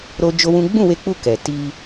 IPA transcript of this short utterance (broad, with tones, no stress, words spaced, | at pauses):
ɾo˦d͡ʒo˦wũ˦ ɡ͡bũ˦˨we˧k͡pu˧ kɛ˨ ti˧